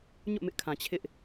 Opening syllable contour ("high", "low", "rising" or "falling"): falling